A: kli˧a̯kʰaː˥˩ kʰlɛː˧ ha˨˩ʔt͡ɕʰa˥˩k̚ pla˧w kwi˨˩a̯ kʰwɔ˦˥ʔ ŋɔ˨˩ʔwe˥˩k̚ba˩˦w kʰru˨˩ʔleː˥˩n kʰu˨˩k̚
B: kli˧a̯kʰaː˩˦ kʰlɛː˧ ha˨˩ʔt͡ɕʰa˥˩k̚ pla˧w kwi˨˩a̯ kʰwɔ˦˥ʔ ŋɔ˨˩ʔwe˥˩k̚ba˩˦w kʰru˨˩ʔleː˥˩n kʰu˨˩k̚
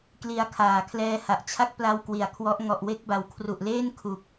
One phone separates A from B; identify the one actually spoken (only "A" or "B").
B